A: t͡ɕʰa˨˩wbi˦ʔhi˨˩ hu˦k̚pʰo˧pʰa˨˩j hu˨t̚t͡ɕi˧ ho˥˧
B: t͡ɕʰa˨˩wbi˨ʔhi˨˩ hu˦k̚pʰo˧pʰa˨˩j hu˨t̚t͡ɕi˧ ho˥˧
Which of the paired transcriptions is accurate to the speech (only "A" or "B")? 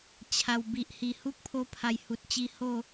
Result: B